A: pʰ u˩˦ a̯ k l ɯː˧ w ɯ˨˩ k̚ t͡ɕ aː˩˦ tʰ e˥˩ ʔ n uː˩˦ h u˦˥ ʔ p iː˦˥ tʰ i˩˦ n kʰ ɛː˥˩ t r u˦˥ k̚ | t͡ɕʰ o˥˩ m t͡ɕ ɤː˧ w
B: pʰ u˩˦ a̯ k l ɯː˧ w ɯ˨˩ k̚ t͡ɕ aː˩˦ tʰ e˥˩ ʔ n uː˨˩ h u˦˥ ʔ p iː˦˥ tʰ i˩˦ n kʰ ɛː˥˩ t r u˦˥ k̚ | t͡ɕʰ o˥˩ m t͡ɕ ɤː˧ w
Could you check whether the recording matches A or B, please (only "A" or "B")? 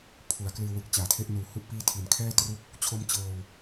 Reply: B